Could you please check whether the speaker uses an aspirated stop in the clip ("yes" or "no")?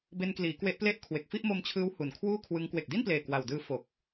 yes